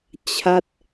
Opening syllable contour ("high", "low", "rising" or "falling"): falling